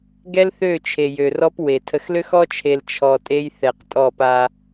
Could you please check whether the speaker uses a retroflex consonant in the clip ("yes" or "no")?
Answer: no